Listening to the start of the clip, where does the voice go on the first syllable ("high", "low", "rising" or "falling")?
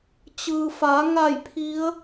low